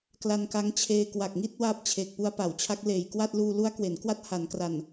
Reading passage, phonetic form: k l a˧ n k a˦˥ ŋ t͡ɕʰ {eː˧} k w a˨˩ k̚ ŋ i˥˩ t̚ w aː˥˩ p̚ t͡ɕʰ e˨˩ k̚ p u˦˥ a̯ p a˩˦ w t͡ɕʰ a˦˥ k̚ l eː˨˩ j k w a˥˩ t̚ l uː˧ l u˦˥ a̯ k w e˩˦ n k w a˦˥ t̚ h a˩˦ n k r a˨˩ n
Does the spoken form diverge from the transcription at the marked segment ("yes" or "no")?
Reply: no